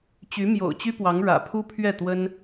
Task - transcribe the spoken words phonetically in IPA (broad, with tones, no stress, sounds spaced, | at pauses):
t͡ɕ y˧˥ m j o̰˨˩ ʊ̯ t͡ɕ y˥ p w ɑ˧˥ ŋ ɻ ä̰˨˩ pʰ u˥ pʰ ɥ ɛ˥˩ t̪ w ə˥ n